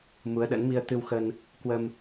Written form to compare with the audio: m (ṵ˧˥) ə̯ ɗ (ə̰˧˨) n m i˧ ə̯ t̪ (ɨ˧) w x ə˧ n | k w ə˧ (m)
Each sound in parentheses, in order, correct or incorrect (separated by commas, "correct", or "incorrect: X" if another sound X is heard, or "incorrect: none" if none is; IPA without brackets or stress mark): incorrect: u˨˦, incorrect: ə̰˧˥, correct, correct